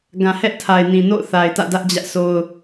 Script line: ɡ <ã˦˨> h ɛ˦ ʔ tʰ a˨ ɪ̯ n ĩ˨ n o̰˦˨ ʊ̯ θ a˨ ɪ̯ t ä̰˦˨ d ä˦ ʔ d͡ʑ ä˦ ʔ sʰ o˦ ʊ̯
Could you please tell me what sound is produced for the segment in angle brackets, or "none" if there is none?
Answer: ã˨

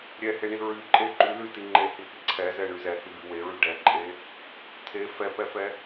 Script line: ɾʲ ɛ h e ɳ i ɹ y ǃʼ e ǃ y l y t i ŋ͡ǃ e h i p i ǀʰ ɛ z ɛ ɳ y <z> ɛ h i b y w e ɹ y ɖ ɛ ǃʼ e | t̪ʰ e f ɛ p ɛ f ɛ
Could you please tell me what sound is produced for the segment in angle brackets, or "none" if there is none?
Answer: z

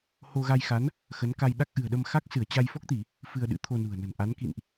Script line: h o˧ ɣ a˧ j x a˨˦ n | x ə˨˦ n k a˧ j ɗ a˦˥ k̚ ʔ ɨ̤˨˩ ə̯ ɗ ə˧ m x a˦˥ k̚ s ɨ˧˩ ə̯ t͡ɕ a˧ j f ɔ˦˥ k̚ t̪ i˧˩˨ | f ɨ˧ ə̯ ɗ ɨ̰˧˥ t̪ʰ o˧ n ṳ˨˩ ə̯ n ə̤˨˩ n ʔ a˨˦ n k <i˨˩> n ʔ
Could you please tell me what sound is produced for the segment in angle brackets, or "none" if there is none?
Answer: ḭ˧˨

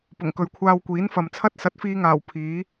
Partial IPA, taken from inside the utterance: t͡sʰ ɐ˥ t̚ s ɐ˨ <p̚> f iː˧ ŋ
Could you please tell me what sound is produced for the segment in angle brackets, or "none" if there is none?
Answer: t̚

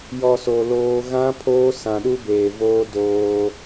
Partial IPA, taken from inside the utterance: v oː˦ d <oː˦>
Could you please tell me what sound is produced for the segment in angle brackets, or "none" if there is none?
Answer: oː˦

